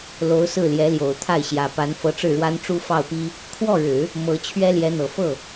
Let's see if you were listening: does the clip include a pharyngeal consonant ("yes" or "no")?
no